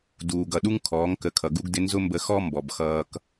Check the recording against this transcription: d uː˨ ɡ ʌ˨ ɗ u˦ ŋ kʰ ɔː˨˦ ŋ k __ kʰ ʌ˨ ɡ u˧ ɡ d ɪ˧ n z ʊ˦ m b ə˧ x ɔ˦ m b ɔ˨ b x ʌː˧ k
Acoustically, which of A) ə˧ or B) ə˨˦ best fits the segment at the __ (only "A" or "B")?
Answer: B